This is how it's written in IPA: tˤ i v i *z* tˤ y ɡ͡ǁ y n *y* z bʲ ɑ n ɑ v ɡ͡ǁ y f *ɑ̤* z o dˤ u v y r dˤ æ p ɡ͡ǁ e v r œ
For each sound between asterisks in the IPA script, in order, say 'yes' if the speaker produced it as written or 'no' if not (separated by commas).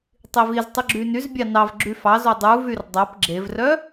yes, yes, no